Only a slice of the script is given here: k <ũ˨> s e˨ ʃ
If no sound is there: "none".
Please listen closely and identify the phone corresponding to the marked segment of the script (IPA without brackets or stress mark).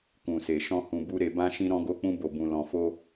ũ˨